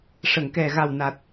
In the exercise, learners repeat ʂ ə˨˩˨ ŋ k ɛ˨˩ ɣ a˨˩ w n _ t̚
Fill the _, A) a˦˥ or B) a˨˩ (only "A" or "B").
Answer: B